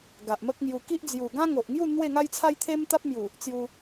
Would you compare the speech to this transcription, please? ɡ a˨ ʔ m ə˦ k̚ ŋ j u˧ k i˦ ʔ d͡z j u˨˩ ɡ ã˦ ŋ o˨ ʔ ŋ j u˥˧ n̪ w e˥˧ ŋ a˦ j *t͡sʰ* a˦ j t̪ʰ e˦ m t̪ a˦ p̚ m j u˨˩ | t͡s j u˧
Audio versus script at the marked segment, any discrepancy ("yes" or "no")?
no